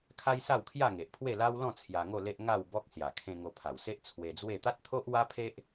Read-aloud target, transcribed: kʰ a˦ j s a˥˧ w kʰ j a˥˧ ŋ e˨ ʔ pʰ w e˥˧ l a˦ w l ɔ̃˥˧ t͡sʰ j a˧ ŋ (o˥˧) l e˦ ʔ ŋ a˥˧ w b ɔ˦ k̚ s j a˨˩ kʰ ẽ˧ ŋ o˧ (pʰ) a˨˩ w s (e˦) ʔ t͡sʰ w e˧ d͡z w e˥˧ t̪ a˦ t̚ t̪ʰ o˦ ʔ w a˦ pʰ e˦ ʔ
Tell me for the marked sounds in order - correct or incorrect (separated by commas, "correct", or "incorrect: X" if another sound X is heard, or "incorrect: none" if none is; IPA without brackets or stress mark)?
correct, correct, correct